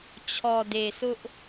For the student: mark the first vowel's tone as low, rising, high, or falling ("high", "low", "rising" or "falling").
low